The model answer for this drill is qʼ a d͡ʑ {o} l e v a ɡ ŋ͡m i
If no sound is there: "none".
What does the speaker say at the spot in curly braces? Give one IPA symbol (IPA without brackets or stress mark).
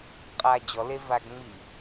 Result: ɔ